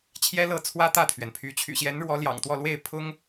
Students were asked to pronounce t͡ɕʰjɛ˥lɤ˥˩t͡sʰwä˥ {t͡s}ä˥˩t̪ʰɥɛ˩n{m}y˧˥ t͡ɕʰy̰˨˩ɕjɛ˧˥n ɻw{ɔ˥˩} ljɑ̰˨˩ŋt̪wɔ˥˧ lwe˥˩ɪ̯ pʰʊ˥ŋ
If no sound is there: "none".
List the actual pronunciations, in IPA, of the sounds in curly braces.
t̪, pʰ, ɔ˧˥

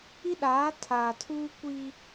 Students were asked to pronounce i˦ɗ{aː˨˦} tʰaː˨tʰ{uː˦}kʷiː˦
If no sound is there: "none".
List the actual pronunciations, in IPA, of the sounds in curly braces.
aː˨˦, uː˦

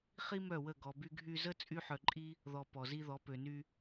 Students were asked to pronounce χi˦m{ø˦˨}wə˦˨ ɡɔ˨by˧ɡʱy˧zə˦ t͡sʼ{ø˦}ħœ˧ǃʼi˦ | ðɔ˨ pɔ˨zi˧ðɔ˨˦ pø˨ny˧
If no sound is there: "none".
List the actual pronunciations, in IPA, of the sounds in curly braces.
œ˦˨, y˦

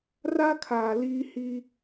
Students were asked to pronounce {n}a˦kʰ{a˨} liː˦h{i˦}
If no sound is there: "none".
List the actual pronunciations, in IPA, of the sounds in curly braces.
r, aː˨, i˦

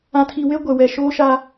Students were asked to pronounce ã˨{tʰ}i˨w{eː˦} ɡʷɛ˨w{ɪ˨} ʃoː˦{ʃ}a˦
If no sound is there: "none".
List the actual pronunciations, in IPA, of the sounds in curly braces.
tʰ, e˦, ɛ˨, ʃ

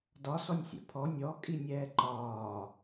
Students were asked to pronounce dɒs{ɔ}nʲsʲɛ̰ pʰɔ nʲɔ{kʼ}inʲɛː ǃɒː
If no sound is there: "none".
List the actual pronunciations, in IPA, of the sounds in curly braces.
ɔ, kʼ

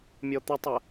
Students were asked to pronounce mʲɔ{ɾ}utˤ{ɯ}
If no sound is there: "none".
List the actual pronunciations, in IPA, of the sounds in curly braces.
t̪, ə

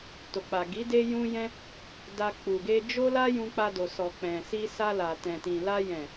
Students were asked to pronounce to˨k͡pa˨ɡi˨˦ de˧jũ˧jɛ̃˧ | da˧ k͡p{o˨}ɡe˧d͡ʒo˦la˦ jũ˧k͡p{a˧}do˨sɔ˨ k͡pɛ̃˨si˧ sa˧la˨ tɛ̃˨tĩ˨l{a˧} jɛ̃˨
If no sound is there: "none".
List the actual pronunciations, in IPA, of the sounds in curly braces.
u˨, a˧, a˧

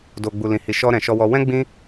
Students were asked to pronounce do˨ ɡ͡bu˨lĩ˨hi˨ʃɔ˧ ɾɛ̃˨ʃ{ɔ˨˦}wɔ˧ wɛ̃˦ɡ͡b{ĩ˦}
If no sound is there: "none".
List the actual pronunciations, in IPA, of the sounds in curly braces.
ɔ˧, ĩ˦

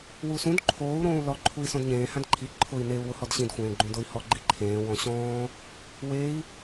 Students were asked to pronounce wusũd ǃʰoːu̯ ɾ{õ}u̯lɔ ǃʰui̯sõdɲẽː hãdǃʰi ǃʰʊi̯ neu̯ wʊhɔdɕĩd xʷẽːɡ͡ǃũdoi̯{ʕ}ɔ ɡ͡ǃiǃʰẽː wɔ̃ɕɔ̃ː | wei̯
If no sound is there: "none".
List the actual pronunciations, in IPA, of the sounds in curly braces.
õː, h

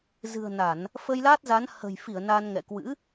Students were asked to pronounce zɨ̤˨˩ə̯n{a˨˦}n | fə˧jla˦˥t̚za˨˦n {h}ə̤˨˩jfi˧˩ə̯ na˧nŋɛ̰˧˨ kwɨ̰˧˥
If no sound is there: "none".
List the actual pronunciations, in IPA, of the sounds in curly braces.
a˧˩˨, h

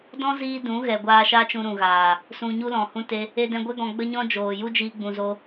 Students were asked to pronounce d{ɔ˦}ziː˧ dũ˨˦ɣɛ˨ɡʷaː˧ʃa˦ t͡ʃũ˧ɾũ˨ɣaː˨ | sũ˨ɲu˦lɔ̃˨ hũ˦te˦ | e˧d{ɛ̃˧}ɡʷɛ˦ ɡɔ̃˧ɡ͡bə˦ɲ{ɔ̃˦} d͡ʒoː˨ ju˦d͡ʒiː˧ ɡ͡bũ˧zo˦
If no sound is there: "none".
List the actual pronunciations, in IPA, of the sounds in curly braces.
ɔ̃˦, ɛ̃˧, ɔ̃˦

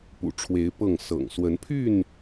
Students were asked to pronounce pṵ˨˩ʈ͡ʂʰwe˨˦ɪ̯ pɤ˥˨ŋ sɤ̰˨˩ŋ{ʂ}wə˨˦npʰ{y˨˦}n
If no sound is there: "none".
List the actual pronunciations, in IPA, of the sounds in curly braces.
s, y˥˨

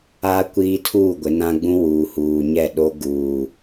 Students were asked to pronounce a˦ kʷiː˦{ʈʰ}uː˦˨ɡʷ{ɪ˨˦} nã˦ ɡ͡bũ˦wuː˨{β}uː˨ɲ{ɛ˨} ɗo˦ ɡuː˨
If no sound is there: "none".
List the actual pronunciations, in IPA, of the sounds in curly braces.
tʰ, ɪ˨˦, h, ɛ˦˨

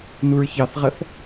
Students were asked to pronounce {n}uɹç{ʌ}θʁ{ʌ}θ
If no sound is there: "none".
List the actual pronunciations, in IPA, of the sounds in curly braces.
n, ɑ, ʌ

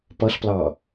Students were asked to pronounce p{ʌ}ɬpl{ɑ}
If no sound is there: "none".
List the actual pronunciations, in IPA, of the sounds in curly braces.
ʌ, ɑ

